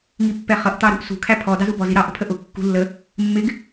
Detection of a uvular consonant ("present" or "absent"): present